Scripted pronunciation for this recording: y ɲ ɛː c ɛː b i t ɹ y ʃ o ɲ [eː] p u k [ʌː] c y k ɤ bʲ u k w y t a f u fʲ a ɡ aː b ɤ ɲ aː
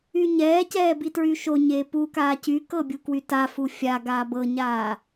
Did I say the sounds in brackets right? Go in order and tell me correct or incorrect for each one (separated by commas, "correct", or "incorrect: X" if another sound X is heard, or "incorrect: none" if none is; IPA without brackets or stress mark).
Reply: correct, incorrect: aː